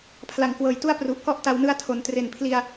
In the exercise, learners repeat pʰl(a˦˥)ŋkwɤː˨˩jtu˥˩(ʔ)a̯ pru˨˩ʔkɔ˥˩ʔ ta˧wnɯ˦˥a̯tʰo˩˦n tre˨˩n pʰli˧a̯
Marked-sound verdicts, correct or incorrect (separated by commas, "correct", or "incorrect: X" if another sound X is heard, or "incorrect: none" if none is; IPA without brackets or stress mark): incorrect: a˩˦, incorrect: none